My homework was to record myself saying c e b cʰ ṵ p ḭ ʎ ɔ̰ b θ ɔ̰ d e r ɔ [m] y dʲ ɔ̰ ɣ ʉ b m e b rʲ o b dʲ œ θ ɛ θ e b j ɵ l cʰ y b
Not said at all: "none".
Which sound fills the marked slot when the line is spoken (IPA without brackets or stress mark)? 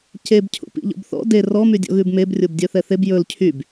m